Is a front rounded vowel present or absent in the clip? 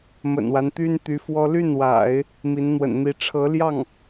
present